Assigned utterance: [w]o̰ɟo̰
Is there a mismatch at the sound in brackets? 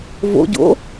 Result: yes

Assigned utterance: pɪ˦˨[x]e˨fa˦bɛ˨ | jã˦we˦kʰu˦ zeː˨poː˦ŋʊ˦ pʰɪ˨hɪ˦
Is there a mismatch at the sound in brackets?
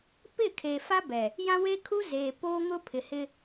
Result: yes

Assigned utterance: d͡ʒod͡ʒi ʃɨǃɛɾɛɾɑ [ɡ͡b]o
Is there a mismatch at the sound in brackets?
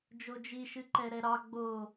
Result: no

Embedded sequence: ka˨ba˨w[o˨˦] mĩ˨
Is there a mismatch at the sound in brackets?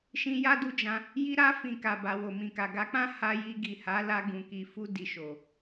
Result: yes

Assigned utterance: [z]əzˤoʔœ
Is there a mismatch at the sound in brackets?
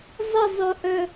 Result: yes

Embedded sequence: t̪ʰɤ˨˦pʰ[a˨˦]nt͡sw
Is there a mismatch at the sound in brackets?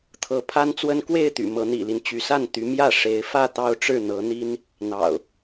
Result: yes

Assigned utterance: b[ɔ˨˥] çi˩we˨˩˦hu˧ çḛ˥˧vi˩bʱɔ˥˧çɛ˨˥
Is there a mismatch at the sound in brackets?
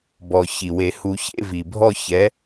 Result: yes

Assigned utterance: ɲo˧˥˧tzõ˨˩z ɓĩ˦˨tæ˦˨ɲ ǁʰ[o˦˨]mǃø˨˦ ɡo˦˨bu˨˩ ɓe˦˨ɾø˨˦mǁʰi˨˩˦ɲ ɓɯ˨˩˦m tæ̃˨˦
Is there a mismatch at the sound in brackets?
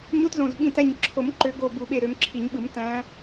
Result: yes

